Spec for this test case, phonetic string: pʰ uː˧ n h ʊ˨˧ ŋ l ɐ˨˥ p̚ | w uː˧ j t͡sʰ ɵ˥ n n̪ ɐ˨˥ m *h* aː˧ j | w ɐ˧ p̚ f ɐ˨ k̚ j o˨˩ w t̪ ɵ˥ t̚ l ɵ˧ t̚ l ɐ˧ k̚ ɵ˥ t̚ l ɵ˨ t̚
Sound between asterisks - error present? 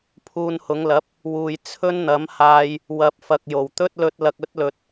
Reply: no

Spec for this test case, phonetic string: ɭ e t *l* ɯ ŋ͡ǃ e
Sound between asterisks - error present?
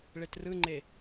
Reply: yes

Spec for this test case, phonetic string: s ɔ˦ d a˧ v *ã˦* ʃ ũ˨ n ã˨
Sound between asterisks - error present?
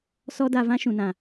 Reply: no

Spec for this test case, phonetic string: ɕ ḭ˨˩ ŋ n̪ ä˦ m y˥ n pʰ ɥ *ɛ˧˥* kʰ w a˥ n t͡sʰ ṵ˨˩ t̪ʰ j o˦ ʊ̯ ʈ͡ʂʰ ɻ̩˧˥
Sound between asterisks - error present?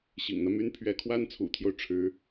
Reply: no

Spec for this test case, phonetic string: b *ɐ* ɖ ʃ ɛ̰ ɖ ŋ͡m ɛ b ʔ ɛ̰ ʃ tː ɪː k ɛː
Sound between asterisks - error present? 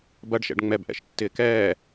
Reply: no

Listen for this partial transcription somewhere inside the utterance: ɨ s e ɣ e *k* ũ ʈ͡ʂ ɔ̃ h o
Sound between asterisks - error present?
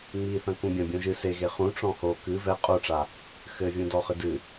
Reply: yes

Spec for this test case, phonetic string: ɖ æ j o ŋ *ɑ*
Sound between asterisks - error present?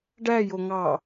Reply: no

